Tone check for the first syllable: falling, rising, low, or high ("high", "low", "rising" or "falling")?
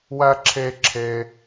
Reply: high